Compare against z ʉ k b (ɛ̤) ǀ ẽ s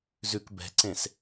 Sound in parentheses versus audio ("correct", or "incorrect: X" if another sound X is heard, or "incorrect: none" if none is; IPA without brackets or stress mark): correct